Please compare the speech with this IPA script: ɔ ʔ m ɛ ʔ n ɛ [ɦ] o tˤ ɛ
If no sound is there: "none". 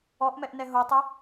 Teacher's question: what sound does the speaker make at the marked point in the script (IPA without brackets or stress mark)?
ɦ